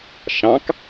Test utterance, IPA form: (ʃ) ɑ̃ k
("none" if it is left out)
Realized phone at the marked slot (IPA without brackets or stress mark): ʃ